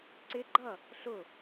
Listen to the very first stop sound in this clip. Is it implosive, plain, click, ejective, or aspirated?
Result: click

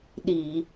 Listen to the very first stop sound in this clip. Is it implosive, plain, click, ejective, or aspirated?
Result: implosive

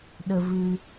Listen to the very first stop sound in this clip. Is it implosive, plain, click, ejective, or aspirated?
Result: implosive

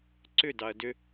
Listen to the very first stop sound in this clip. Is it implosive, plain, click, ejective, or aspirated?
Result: click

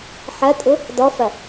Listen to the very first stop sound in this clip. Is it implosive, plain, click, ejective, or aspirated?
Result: ejective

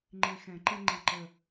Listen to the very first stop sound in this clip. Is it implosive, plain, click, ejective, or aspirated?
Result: click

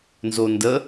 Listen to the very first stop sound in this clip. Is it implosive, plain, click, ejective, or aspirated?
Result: plain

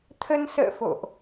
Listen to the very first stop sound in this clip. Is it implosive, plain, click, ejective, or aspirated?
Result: aspirated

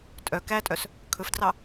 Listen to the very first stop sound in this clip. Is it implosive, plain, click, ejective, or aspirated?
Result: ejective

